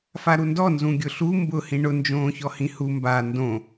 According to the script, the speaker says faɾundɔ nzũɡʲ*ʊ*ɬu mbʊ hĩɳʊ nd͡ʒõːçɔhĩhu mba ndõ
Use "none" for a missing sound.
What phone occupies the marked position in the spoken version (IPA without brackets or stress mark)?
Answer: ʊ